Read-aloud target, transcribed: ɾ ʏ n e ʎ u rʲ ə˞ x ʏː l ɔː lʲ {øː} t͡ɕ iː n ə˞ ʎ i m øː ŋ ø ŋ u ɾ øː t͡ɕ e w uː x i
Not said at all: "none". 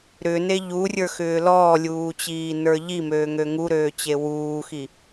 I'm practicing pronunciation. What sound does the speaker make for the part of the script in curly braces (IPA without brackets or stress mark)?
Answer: uː